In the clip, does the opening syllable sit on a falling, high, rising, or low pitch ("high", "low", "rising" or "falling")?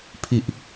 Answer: low